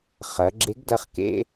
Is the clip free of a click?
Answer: no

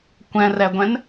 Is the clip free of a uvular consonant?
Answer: yes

